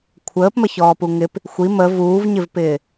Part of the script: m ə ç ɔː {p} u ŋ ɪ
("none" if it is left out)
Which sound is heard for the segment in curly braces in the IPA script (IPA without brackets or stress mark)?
p